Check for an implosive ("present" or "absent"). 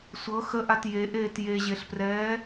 absent